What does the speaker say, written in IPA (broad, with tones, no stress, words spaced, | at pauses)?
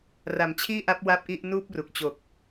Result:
ra˩˦mt͡ɕʰiː˥˩ʔa˦˥p̚ wa˥˩p̚ʔi˥˩ʔ nuː˥˩p̚ru˨˩k̚t͡ɕo˨˩k̚